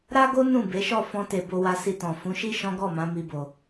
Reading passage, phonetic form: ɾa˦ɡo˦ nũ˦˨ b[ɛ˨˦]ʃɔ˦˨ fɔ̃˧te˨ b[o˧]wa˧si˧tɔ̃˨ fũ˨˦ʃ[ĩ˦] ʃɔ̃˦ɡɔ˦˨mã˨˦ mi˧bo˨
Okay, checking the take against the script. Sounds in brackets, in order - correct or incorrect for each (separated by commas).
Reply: incorrect, correct, incorrect